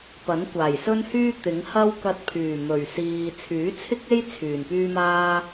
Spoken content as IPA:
pɐ˨˥nkʷaː˨˩jsɵ˥nhyː˥ t̪ɪ˨˥ŋ hɐ˥wkɐ˧t̚ pʰyː˨˩mɵ˨˩ɥsiː˨ t͡sʰyː˨˥t͡sʰɪ˥k̚e˥j t͡sʰyː˨˩npyː˥maː˥

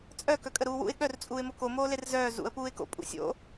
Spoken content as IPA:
t͡sʼœ kœkʼəɾuːwṵɪ̯ ɠœrt͡sʼuːɪ̯ mokomoːler zœː zṵə̯ puːɪ̯ko̰ pʼṵsʲo̰

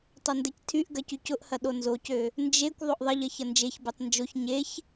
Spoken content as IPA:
tˤɐndɛctʰyʔɡɐ cycʊʔhɐ ɗonzocø | nd͡ʒekʷ ðˤoʔðˤɐʎɐ çɐnd͡ʒeçbɛtˤ nd͡ʒoç ɲeç

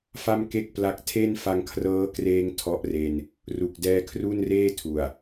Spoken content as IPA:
fa˥˩mke˥˩k̚pla˦˥k̚ tʰe˥˩n fa˧ŋkʰrɤː˦˥kreː˧ŋ tʰɔ˦˥ʔre˧n | ru˨˩k̚ dɛː˧ kʰru˥˩nreː˥˩tʰu˨˩a̯

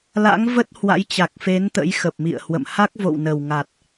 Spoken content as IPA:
la̰˧˥ŋvə˦˥t̚ hwa̰˧˥jt͡ɕa˨˩k̚fe˨˦n t̪ə̰˧˥jxə˨˩p̚mḭ˧˨ə̯hwə̰˧˨m ha˦˥k̚vo̰˧˨wnə˨˩wŋa˨˩t̚

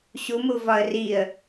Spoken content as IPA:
ɕumu vɒə̯riə̯

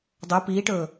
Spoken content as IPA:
dˤɵ piːʈɵː

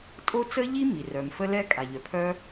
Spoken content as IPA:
tʼo˥ t͡sə˥ʎi˥mi˩rœ˩m fə˥lɛ˥kʼa˩ ʎœ˩pʰœ˥

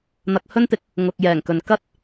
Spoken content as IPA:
n̪ɐ˨k̚hɵ˥nt̪ɪ˧k̚ | ŋʊ˨k̚jɛː˨˩ŋkɵ˨n kɐ˥t̚

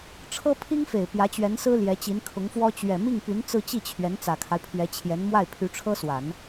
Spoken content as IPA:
ʈ͡ʂʰɤ˥pʰi˥ŋfe˨˩ɪ̯ pjä˧˥t͡ɕɥɛ˧˥nsɹ̩˥ ljɛ˧˥t͡ɕi˧˥nkʰʊ˧˥ŋfwɔ˥ t͡ɕɥɛ˨˩mi˥˩ŋpy˧˥n t͡sɹ̩˥˧t͡ɕi˥˩t͡ɕʰɥɛ˧˥n t͡sä˨˩kʰa˦ɪ̯pʰɥɛ˧˥t͡ɕʰjɛ˧˥n mwa˥˩ɪ̯pʰy˧˥ʈ͡ʂʰɤ˥swa˨˩˦n

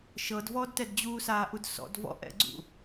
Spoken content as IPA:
ʃɤdvɔːdtɛd d͡ʑuːsaːʔudsɔ̰d vɔ̰ʔɛ̰ɡ͡ǀṵ

